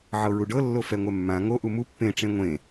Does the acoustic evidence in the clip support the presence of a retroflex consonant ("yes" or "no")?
yes